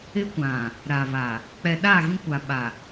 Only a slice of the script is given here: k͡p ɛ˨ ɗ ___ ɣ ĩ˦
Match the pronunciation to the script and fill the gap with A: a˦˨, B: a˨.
A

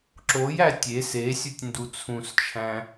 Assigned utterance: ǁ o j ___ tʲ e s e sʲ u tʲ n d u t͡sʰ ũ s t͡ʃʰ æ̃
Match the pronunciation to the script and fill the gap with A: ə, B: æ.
B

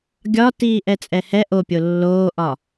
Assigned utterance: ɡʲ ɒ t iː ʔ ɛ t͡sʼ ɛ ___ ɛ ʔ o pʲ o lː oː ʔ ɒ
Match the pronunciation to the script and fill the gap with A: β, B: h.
B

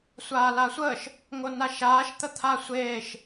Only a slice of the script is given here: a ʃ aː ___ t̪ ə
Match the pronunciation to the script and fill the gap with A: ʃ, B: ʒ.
A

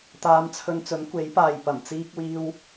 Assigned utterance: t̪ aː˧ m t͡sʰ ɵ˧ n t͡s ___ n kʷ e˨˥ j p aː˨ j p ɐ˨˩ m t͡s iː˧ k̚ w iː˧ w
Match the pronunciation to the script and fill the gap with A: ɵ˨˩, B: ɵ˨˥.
B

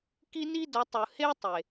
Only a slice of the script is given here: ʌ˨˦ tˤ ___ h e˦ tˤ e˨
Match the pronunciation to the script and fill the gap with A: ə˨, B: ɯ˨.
B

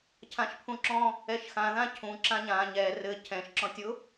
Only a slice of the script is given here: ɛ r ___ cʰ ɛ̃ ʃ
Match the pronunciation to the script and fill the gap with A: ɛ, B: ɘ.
B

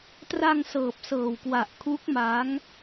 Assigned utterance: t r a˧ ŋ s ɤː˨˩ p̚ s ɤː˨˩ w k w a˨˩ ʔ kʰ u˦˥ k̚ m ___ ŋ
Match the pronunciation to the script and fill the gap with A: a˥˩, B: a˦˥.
B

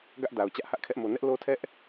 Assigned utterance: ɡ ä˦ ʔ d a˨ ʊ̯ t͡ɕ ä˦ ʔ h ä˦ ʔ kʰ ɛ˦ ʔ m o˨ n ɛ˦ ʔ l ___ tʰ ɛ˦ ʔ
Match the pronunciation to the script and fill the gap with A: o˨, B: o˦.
B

